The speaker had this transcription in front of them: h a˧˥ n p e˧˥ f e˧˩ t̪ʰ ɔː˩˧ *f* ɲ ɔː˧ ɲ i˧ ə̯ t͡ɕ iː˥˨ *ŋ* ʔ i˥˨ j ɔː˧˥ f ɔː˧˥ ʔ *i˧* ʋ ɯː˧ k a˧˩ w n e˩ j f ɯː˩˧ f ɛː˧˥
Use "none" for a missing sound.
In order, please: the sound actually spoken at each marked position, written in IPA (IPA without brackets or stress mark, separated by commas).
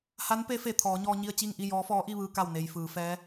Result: none, ŋ, i˥˨